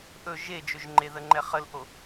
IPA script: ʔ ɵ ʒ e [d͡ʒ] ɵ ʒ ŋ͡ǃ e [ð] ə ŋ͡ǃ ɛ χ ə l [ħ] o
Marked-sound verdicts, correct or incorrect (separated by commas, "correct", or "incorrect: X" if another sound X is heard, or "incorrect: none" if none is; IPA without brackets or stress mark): correct, correct, incorrect: ʔ